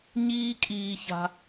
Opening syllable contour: high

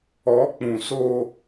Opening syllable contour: rising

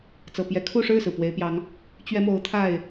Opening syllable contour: low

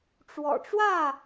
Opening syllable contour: low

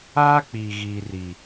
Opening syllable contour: high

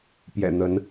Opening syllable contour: low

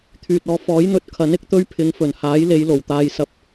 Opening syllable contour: low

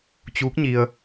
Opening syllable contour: rising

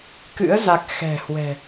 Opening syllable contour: rising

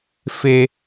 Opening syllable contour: high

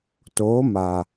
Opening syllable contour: rising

